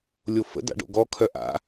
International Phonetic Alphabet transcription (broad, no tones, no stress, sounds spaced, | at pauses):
lʲ o f ə̰ d a̰ ɖ o̰ ɡ ɔ kʰ œ ʔ a̰